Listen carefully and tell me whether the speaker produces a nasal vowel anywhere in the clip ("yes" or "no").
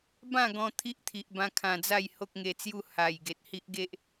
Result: yes